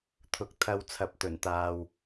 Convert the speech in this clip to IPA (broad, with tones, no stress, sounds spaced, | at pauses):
t̪ʰ ʊ˨˥ k̚ t̪ʰ ɐ˧ w t͡sʰ ɐ˨ p̚ t̪ ɵ˨˩ n t̪ aː˨ w